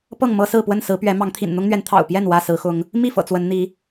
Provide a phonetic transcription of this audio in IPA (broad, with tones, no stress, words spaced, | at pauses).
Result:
pɤ˥˨ŋmɤ˦sɹ̩˥˨pwə˥˨n sɹ̩˨˦pɥɛ˨˦mɑ˨˦ŋt̪ʰḭ˨˩n n̪ʊ˦ŋn̪ɥɛ˨˦n t̪ʰɑ̰˨˩ʊ̯ pjɛ˥˨n wä˥˨sɹ̩˨˦xʊ˨˦ŋ | mi˥˨fɤ̰˨˩ t͡swə˨˦nn̪i˨˦